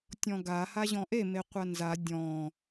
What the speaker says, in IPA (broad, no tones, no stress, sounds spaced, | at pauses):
tʲ ɔ̃ ɡ a h a ʑ ɔ̃ ʔ e m e qʷ a n z a dʲ ɔ̃